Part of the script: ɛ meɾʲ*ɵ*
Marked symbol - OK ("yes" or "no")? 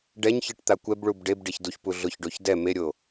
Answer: no